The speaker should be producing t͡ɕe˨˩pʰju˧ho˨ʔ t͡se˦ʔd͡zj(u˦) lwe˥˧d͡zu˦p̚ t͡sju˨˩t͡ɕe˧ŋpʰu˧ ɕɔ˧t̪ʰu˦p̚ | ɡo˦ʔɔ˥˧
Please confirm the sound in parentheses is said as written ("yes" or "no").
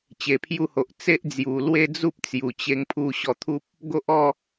no